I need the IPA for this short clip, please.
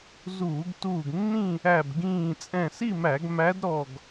z uː˧˩˧ ɡ t uː˧˩ ɡ nː ĩ˥˨ | æ˧˩ b ɡ ĩː˧˩ t͡sʼ ɛ̃˧˩ s i˥˨ m æ˧˩˧ ɡ m æ˧˥ d ɾ ɔ˧˩ ɡ

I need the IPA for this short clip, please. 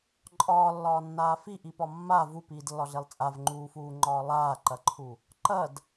ǃʼ ɒː lː ɒː nː aː f i ʔ i p ɒ mː a v u p iː d lː ɒ ɮ e lˠ t͡sʼ a v ŋ͡ǃ uː f uː ŋ͡ǃ ɒː lˠ aː ǃ ɐ ǃʰ u | ǃ ɐ d

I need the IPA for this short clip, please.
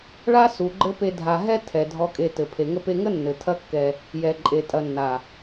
ɭ a˦ s u˨ ɡ͡ǃ ɘ˦ p e˧ dʱ a˨ ɦ ɛ˧ tʰ ɛ˨ dʱ ɔ˨ kʼ e˨ t ɘ˨ pʰ e˨ ŋ ə˧ p e˧ ŋ ə˦ nː ɘ˨ tʰ ɐ˦ kː ɛ˧ | j ɛ˨ ǃʼ e˨ tʼ ɐ˨ nː a˨

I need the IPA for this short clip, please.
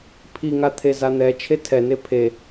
pʰ i ŋ a t̪ʰ e z a n̪ ɛ t͡ʃʰ e tʰ ɛ n e pʰ e

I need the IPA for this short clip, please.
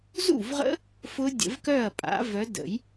z ṵ˥˩ v ʁ ə̰˦˥ | f ʊ˦˥ dʲ ə̰˨˩˦ v k œ˥˩ ɐ̯ pʼ a̰˨˦ v œ˨˦ d ə̰˨˩˦ j

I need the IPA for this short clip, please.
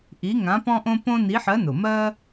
ʔ i˧˥ ŋ ã˧˥ p ɔ̃˥ ʔ õ˥ p õ˥ n i˧˥ ħ ɜ˧˥ n ʊ˨˩ m ɜ˥

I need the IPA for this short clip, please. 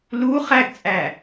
l u χ æ ɡ t͡sʼ æ

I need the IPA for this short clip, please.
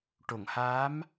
ʈ o˨˩˨ ŋ h aː˧˥ m

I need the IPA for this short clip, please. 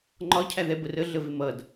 ŋ͡ǃ ɒ cʰ æ ð ɛ b ə r ə ɮ ə v ɪ m ʌ d

